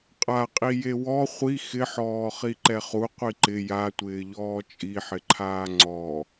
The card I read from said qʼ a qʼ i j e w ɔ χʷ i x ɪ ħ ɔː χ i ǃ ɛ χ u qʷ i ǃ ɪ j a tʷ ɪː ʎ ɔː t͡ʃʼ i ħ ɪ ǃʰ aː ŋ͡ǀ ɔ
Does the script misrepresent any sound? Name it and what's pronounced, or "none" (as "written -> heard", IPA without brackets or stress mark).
none